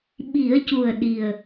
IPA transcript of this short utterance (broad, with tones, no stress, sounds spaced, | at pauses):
ɓ i˨˩˦ ə̯ c u˨˩ ə̯ ɗ i˨˩ ə̯